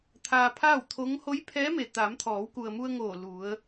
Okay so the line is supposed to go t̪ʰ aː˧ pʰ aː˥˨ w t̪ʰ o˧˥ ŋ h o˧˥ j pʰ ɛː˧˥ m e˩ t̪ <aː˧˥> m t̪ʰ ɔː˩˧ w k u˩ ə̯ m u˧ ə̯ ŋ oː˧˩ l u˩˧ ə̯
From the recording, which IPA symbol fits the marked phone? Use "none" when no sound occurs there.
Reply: aː˩˧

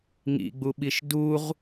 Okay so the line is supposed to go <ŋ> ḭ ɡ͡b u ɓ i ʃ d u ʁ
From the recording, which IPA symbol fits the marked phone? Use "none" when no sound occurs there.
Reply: ŋ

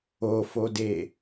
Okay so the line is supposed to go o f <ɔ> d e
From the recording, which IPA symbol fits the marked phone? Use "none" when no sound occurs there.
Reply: o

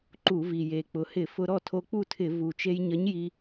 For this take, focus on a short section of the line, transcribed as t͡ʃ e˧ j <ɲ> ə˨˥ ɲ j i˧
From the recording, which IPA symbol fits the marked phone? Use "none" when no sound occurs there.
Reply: ɲ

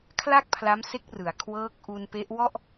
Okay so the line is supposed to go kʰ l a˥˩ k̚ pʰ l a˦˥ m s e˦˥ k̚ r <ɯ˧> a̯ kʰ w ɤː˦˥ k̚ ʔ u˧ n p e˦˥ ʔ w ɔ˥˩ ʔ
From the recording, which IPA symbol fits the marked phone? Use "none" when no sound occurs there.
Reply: ɯ˩˦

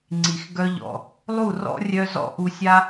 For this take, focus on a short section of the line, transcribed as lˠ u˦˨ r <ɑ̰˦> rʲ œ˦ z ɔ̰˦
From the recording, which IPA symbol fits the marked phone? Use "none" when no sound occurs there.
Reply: ɔ̰˦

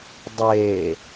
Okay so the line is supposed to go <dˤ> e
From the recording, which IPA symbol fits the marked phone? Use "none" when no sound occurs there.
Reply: dˤ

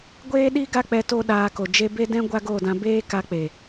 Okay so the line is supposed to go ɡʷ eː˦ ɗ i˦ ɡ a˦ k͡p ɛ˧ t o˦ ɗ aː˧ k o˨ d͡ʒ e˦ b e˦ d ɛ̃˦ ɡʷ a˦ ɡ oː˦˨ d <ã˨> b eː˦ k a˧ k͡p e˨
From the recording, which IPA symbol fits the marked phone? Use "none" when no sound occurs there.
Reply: ã˧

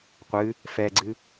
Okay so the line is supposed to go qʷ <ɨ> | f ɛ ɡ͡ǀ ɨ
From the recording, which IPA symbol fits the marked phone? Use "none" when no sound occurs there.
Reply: ɨ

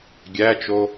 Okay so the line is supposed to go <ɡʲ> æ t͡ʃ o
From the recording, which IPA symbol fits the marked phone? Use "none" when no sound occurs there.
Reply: ɡʲ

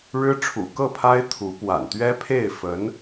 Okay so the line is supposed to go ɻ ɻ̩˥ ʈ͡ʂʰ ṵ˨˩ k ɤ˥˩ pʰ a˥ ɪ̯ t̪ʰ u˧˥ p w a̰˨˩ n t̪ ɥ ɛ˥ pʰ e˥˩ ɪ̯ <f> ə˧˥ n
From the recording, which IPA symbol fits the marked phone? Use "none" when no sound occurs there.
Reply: f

